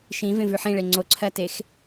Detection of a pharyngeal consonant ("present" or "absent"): present